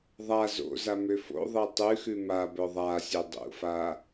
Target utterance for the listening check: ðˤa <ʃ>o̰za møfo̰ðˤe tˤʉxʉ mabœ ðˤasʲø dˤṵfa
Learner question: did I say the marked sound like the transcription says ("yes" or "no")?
no